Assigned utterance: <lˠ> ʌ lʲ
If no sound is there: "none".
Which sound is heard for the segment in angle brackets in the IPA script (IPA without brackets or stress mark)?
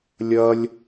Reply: lʲ